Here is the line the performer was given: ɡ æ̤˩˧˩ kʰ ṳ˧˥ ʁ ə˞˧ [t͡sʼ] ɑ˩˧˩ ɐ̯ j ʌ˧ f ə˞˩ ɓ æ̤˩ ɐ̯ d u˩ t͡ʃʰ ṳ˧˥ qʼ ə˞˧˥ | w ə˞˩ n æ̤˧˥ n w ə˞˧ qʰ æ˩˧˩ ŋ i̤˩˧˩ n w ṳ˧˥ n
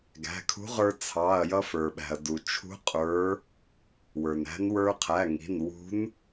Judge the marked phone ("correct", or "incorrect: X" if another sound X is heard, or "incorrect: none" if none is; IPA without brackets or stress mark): incorrect: t͡sʰ